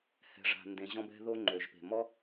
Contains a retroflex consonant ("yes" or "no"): yes